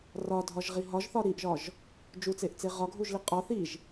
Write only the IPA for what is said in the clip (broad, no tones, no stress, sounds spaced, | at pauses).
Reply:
r ɒ dʱ ɒ ʒ ʁ i ɦ ɒ ʒ θ ɒ ɾ i ʔ ʒ ɒ ʒ | d͡ʒ u t͡s e ʔ t͡s e ʁ ɒ ɡʱ u ʒ l i qʼ ɒ θ i ʒ